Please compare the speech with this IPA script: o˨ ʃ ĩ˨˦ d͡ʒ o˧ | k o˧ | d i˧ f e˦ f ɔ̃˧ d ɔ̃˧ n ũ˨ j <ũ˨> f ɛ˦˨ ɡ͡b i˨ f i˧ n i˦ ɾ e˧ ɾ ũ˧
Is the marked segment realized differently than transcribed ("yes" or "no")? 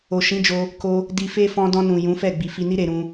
yes